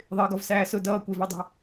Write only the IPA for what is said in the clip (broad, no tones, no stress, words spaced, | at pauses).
ðˤɪːɡɒvsæːsʊ dʌːkʷɪːvɛdˤæ̤